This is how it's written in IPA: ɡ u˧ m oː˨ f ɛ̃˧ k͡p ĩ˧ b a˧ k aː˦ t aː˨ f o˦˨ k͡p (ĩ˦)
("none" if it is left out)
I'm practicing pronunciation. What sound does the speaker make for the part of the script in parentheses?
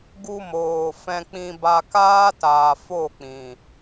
ĩ˨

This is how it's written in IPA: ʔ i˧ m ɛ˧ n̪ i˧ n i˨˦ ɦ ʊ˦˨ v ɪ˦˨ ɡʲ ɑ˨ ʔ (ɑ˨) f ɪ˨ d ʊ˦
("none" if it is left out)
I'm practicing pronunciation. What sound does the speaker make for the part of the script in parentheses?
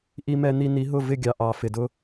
ɑ˨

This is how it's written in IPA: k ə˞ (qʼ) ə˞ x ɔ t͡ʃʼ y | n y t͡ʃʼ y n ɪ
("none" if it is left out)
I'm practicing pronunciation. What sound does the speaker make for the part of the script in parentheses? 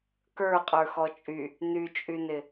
qʼ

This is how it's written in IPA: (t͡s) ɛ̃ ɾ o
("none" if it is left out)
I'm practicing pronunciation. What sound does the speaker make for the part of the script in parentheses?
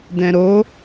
d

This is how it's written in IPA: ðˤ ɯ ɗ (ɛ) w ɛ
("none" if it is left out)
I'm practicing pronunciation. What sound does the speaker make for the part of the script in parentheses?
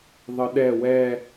ɛ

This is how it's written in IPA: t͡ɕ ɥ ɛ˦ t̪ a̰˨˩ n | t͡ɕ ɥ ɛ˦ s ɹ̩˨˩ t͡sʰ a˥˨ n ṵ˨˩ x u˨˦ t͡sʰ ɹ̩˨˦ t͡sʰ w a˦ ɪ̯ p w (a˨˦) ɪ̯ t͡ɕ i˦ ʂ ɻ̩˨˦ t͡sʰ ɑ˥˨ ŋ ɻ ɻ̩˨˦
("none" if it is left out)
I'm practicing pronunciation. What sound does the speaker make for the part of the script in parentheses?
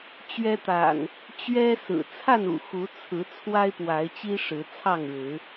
a˨˦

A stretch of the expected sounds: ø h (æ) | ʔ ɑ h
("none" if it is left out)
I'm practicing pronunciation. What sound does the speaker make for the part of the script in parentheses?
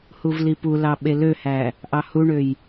æ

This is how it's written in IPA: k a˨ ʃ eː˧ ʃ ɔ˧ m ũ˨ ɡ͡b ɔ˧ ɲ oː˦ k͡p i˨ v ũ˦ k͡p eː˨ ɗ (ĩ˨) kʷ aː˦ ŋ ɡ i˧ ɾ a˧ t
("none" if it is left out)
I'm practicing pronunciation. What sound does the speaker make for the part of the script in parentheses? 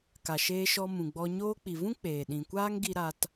ĩ˨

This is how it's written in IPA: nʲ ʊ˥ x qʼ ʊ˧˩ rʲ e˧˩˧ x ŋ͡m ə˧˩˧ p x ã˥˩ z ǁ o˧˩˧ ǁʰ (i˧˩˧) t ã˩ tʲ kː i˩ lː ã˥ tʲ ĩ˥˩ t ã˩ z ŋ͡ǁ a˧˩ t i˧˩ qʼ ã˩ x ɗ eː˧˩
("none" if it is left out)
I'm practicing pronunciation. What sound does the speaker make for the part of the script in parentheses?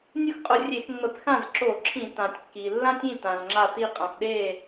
ĩ˧˩˧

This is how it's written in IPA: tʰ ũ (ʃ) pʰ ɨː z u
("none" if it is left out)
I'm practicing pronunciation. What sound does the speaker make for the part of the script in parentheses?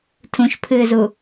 ʃ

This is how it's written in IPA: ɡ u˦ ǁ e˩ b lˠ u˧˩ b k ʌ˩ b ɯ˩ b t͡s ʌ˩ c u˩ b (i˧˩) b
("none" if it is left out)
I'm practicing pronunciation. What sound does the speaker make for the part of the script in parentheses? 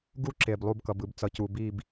i˧˩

